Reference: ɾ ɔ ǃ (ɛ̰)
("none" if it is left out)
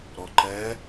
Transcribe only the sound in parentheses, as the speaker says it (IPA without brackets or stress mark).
ɛ